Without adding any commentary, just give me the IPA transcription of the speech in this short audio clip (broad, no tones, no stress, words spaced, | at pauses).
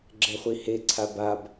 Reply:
ɡ͡ǁɛχʷiheǀʰa bab